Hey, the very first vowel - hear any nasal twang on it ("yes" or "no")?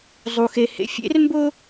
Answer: no